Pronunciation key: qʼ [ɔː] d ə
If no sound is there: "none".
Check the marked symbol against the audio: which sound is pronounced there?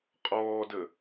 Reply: ɔː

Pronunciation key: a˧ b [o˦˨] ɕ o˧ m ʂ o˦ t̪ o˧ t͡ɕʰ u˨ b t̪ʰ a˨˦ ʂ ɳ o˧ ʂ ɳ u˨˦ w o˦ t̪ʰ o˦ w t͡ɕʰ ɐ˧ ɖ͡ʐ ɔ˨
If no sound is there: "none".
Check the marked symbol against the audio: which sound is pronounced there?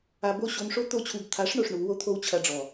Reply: o˦˨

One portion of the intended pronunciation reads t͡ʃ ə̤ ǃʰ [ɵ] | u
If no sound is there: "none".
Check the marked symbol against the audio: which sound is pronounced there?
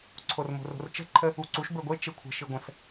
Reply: ə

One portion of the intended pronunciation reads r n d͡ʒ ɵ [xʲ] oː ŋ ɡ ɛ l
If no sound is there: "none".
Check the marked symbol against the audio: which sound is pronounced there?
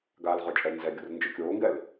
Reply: kʲ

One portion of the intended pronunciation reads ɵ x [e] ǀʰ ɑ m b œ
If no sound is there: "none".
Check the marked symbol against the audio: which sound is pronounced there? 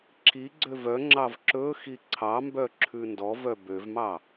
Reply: i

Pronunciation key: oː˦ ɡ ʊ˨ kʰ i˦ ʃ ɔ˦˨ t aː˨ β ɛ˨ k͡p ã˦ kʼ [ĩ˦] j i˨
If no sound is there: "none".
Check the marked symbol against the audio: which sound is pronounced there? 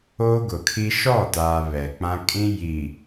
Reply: ĩ˦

